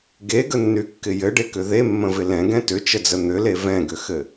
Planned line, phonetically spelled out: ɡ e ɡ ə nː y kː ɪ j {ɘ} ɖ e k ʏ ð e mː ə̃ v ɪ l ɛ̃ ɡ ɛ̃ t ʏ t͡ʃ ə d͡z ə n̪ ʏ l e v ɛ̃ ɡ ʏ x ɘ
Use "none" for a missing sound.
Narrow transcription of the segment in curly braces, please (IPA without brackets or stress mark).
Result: ɘ